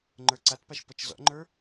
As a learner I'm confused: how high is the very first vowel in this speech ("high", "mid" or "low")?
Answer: mid